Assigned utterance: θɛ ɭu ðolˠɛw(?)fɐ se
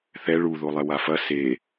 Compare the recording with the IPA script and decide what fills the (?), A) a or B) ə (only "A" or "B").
A